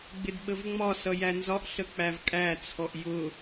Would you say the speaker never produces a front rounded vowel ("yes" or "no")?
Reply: yes